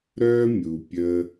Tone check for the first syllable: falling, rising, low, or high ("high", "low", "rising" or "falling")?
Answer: high